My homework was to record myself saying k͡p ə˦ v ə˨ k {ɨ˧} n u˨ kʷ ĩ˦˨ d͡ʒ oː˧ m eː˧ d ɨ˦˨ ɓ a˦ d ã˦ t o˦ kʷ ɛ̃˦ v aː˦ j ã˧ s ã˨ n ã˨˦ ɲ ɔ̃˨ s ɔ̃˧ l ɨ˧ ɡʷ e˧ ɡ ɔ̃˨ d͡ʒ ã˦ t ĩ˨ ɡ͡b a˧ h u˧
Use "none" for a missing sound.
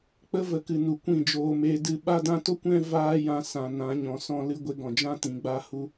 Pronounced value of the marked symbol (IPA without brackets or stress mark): ɨ˨